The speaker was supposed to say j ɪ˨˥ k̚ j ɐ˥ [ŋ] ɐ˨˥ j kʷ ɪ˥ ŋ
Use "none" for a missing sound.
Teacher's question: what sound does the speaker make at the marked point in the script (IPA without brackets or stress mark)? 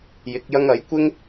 ŋ